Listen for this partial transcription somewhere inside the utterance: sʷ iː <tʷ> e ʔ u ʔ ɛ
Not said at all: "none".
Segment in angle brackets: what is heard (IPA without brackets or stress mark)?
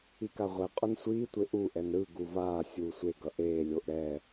tʷ